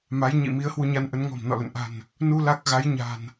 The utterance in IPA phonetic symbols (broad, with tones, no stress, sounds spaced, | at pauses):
m a˨˦ j ɲ ḭ˧˨ m i˨˦ ə̯ h w u˧ ɲ a˧ n ʔ ə˨˦ n ŋ ɔ̤˨˩ m n ɔ̰˧˨ l ə̰˧˨ n ʔ a̤˨˩ n | n u˧ l a˦˥ k̚ ɣ a˨˦ j ɲ a̤˨˩ n